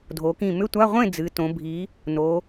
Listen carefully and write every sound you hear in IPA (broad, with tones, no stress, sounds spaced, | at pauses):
dʱ o˩˧ k ĩ˧˩ m ʏ˧˥˧ tʷ a˧˥˧ ʁʷ ẽ˥˨ d͡z ɨ˩˧ t õ˩˧ bʱ i˩˧ | n o˩˧